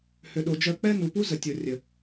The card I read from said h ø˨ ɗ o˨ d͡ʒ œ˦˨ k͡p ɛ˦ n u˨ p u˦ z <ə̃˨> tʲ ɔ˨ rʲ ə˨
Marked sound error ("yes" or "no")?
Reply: yes